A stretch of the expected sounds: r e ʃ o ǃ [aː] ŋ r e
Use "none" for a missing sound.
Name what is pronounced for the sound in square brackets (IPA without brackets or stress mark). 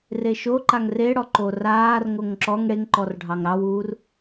a